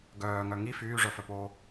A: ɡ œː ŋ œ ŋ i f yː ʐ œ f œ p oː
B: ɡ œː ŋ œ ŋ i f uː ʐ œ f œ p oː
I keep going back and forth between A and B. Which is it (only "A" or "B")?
A